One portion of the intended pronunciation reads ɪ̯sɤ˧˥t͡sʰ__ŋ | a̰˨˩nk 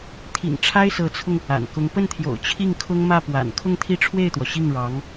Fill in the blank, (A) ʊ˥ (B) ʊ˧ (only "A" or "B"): B